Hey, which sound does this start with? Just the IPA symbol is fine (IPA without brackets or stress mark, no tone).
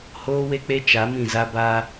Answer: h